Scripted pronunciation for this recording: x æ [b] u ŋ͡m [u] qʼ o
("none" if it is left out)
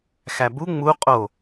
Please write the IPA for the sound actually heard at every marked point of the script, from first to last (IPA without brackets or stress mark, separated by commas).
b, u